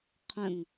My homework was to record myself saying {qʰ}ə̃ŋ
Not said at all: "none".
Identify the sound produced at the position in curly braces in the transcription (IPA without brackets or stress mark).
qʰ